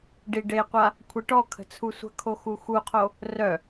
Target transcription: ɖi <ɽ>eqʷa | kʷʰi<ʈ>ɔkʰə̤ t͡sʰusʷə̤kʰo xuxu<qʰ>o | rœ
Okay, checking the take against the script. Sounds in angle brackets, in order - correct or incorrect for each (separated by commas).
incorrect, correct, correct